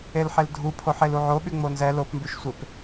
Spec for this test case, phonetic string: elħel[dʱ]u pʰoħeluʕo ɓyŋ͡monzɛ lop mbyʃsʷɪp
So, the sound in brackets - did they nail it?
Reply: yes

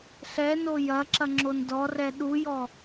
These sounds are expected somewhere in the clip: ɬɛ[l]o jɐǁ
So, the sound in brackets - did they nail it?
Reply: no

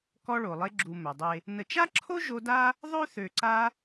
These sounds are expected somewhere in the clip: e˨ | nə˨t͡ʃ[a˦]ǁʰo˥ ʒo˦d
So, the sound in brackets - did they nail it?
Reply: no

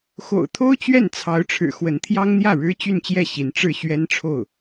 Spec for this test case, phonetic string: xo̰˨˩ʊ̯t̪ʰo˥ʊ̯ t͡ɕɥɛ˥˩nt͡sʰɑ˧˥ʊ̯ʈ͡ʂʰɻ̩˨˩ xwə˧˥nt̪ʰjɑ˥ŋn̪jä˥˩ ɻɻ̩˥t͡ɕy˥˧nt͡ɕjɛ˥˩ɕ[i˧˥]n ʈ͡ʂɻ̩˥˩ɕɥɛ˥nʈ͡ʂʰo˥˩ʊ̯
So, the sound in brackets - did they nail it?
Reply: yes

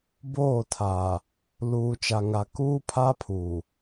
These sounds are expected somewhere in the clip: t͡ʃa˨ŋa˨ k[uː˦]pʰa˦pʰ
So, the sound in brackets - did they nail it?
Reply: yes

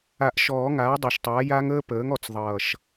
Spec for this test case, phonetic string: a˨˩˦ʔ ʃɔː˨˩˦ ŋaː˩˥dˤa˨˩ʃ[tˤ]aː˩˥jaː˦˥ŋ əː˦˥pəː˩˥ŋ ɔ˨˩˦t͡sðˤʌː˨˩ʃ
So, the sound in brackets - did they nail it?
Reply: yes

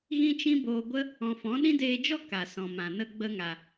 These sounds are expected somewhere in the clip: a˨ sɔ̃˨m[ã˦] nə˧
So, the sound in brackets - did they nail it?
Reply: no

